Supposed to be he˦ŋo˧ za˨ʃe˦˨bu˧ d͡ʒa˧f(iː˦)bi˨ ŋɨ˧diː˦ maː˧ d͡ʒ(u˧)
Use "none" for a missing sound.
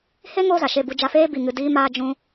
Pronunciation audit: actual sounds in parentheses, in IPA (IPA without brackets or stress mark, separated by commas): eː˦, ũ˧